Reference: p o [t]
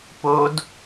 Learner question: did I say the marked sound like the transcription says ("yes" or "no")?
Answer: no